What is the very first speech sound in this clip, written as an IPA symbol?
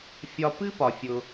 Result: fʲ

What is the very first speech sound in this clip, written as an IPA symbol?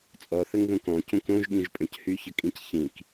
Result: t͡sʼ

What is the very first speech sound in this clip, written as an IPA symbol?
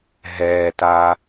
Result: ɦ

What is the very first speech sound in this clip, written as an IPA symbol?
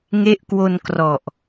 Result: ŋ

